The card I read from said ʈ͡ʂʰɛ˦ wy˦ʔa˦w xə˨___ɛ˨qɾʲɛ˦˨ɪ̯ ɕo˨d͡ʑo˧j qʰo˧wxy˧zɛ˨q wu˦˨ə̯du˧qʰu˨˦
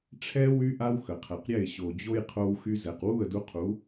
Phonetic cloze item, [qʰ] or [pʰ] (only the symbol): qʰ